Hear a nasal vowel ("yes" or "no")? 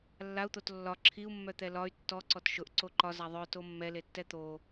no